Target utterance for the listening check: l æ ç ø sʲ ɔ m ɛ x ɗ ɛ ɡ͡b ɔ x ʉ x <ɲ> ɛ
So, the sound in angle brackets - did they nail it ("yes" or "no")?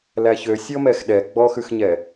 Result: yes